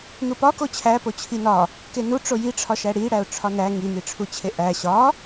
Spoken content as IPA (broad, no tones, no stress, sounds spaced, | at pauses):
n̪ u p ɒ k o t͡ɕʰ æ p o t͡ɕʰ i n ɒ | k e n u ʈ͡ʂ o j i ʈ͡ʂʰ ɒ ʃ æ ɽ i ɽ æ ʊ̯ ʈ͡ʂʰ ɒ n æ ŋ i n̪ i ʈ͡ʂʰ u t͡ɕʰ e ʔ æ ɕ ɒ